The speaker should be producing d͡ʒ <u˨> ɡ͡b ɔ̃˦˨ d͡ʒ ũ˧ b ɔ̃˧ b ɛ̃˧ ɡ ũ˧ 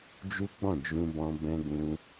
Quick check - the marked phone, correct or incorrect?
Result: incorrect